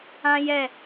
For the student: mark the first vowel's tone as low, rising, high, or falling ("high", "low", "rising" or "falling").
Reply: high